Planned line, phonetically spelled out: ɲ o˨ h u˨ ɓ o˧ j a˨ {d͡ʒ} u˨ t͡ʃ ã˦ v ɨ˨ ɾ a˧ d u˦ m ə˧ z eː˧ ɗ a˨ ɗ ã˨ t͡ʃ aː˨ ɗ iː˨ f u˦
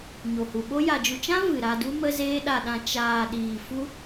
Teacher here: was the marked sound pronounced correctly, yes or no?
yes